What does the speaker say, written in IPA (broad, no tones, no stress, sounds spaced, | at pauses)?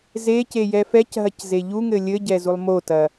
z e c e j ɛ f ɛ c ɦ ɐ c z e ʎ u ŋ ɘ lʲ ɘ ɟ ɛ z u lˠ m o t ɐ